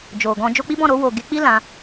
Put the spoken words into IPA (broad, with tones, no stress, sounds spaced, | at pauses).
d͡ʒ o˨ ɡ ɔ̃˧ d͡ʒ o˧ k͡p i˦ b ɔ̃˦˨ ɾ o˧ w o˨ ɡ e˨˦ k͡p i˦ l ã˧